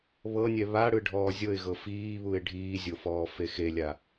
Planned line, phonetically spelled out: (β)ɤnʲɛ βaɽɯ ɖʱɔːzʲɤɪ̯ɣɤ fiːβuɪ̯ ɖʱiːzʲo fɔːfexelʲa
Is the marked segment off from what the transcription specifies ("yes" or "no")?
no